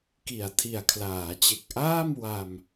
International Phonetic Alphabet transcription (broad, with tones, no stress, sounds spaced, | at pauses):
k i˨˩ a̯ tʰ i˨˩ a̯ kʰ l aː˩˦ t͡ɕ e˨˩ k̚ ʔ aː˥˩ m w a˧ m